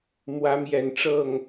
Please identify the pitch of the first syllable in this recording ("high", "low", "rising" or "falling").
rising